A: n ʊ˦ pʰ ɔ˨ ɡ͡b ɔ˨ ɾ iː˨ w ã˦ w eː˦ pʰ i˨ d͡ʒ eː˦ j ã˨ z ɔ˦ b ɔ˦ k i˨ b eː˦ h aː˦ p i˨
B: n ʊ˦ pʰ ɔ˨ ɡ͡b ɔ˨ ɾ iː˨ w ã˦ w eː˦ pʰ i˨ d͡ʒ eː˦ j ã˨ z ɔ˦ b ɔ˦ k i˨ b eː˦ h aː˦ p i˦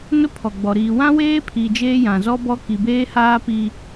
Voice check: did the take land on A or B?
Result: B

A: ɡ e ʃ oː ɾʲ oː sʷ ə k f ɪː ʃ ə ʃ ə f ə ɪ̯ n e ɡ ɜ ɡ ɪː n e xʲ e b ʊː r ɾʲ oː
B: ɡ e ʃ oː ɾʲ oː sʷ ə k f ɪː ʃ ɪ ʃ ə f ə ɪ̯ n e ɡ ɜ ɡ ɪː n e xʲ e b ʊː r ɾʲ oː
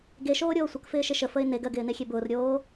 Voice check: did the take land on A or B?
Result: B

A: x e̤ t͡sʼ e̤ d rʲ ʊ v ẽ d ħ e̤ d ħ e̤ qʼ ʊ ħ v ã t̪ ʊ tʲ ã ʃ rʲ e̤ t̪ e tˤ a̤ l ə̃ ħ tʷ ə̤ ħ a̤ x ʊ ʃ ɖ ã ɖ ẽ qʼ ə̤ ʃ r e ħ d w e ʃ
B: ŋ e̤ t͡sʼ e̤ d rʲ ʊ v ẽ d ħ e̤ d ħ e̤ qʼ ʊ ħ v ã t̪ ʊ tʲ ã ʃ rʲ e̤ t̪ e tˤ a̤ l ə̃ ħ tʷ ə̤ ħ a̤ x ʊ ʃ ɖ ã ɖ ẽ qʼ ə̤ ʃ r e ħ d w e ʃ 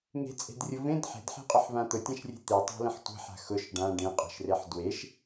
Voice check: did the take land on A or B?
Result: B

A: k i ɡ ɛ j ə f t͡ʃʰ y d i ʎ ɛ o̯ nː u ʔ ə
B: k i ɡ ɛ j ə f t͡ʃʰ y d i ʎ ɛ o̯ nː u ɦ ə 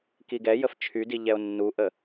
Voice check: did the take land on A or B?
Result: A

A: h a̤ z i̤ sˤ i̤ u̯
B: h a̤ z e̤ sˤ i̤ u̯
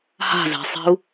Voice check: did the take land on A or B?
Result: B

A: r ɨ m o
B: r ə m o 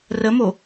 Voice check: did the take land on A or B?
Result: B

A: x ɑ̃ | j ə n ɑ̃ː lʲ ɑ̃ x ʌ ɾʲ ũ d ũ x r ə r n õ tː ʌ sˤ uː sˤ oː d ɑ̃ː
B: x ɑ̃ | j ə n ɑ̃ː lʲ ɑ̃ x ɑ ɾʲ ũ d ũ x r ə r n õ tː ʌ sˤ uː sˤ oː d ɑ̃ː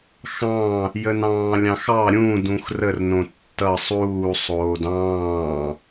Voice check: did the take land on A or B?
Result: B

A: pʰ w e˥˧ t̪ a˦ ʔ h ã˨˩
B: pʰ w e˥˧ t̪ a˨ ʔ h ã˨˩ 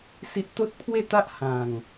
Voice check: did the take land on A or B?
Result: A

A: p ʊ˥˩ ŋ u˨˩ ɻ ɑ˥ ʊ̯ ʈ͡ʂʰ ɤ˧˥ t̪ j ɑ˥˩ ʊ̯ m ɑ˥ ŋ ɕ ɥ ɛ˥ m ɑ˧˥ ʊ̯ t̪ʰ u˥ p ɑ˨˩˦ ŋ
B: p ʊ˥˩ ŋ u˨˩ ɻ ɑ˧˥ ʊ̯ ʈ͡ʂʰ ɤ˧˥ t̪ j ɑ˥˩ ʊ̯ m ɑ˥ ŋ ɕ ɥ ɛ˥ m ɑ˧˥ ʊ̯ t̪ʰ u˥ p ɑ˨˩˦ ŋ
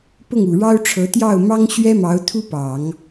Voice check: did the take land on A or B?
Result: A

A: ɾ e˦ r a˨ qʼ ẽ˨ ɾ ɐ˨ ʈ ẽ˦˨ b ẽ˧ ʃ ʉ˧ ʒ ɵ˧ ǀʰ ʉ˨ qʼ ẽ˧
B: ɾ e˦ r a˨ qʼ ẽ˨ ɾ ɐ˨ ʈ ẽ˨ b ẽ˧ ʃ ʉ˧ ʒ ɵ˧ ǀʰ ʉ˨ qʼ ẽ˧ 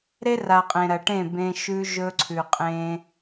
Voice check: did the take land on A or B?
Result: A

